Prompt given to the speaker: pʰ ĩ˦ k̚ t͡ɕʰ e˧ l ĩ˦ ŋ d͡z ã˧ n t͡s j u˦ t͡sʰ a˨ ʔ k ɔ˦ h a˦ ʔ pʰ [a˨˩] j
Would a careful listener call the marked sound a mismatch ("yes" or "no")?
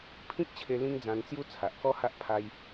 yes